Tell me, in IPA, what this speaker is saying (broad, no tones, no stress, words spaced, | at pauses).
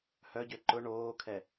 hœɟø ǃʊ ɳoːkʰɛ